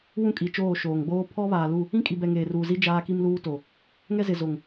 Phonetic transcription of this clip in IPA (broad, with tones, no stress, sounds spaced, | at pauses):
w ũ˦ kʼ i˨ t͡ʃ oː˦˨ ʃ oː˨ ŋ ɡ͡b oː˦ pʰ ɔ˦ β aː˨ l u˦˨ | ĩ˦ kʼ i˨ b ɛ˨ ŋ eː˨ r uː˨ z i˦ d͡ʒ aː˦ k i˦ m l uː˦ t o˨ | ŋ ɛ˦ z ɪ˨ z o˨ ŋ